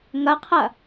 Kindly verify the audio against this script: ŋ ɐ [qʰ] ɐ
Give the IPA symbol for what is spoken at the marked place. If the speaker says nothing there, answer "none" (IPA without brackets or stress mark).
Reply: qʰ